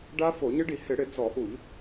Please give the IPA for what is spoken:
ɖa˦˥fo˧˩˧ɲɪ˦˥ɖi˧˩˧ hɪ˧˩˧ɽɪ˧˩˧ d͡zɔ˧˩˧ʔu˧˩˧ʎ

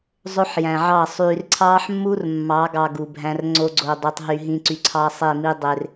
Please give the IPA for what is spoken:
zˤø˦ħjæ̃˨ʕɑ˦˨ sˤyː˨rǀʰɑː˦ħmːu˦r mːɑ˨˦ɡɑ˨ ɡu˨bʱæ̃˦r ŋ͡ǀo˦ɡ͡ǀo˨dˤy˨tˤ ɦy˨ɦĩ˨ǀy˨ ǀʰɑ˦sˤe˦˨mi˦ dˤe˦r

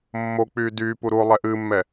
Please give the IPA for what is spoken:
mːok͡pyː dyːpu ɾuo̯lˠɛ ʔɨːmːɛ

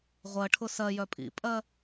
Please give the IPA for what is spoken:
ʁʷɜʈʰʊ sɜjœ pʼḭpʼɜ

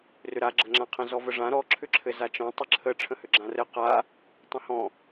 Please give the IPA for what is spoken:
rʏɾa ɡ͡ǁəŋ͡ǁãqʰə̃ zɔvəʐã ɾɔ ǁʰʏǁʰɘzat͡ʃɔ̃ tˤɘǁʰə ʈ͡ʂʰə̃hʏɡ͡ǁãrɘ qa | tˤə̃hɔ̃

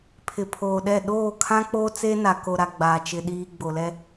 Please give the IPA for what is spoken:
pʰɪ˨pʰoː˨ɗɛ˦˨ ɗoː˦˨kʰã˦k͡poː˦ t͡se˦na˨ ko˨ɾa˨ ɡ͡baː˨t͡ʃɪ˨ ɗiː˨ ɡ͡bo˨lɛ˦

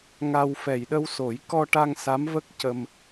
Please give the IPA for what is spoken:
ŋa˧w fɛ˨˩jɗə˧wso˨˩˦j kɔ˧ʈa˧ŋ sa˧˥mvə˦˥k̚cə˧m

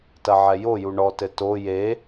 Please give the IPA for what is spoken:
tɐʕɛjoju ɳɔtɘ to je

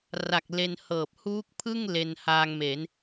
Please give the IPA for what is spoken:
ra˨˩k̚ le˧nhɤː˨˩p̚ huː˦˥k̚pʰɯ˥˩ŋ le˧nhaː˧ŋme˩˦n

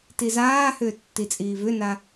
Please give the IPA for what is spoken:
tizaːhʏː tːit͡sʼiːvʏna

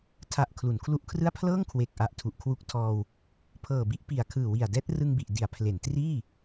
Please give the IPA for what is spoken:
tʰa˨˩ʔ kʰlu˩˦nkʰlu˦˥ʔkʰrɯ˥˩a̯ pʰlɤː˥˩ŋkʰwe˨˩k̚ʔa˨˩ʔ tʰu˨˩ʔkʰwu˦˥k̚tʰɔː˧w | pʰɤː˨˩bi˥˩ʔ pi˨˩a̯ kʰɯː˨˩wi˨˩a̯dɛː˦˥t̚ rɯ˧ŋbi˨˩ʔdi˩˦a̯ pʰle˩˦ntriː˥˩

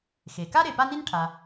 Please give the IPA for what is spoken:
xe˩ka˥ ɾe˨pa˥ni˥n ʈʰa˨

